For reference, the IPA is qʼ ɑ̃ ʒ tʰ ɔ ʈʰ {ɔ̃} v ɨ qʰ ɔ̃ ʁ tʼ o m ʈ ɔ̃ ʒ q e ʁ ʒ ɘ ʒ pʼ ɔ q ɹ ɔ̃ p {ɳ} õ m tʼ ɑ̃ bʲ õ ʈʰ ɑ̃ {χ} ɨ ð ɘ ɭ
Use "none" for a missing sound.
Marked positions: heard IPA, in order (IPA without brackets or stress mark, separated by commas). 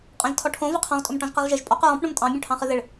õ, ɳ, χ